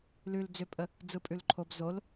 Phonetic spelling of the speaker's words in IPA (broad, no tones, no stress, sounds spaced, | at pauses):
l ʉ l d͡z ʏ pʼ ə | d͡z ɯ pʼ ʉ l ǃʰ o b z o l